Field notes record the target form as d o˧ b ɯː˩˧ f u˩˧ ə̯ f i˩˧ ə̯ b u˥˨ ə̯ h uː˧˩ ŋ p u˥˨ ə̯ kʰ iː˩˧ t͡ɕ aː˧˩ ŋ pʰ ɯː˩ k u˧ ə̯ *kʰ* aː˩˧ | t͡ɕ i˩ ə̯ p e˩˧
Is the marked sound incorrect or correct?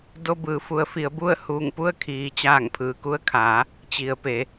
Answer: correct